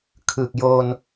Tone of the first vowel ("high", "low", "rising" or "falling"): low